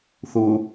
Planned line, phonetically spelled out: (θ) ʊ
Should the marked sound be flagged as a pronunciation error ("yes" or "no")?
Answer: no